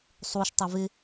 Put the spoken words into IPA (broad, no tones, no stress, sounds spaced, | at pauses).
sˤ u ʃ tˤ ɪ v ɪ